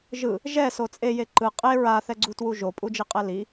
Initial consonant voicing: voiced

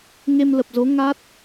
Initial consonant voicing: voiced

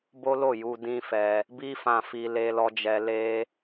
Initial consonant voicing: voiced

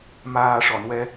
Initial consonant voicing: voiced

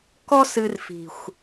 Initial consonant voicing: voiceless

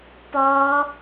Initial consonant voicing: voiceless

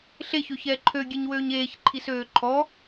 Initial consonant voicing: voiceless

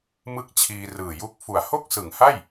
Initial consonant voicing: voiced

